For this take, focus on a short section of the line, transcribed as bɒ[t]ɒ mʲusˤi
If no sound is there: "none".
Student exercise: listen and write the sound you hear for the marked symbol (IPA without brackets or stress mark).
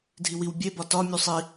t